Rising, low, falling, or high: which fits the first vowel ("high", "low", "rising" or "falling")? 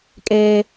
high